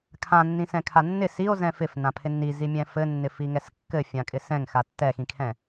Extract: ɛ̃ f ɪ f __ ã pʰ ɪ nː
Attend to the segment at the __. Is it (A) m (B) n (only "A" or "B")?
B